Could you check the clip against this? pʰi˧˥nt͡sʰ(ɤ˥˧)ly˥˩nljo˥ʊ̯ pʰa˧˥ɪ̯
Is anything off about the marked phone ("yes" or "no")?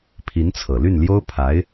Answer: yes